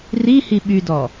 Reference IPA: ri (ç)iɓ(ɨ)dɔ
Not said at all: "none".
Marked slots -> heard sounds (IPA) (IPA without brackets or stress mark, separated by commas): h, y